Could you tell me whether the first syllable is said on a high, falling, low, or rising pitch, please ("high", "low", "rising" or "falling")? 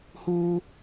high